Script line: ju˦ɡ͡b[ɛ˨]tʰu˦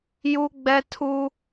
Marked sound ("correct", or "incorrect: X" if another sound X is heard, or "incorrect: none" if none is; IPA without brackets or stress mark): incorrect: ɛ˦